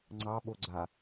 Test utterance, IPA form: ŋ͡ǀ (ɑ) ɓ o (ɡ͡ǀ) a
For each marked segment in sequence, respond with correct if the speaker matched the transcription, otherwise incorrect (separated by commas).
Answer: correct, correct